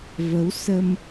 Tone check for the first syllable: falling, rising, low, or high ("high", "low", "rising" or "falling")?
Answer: rising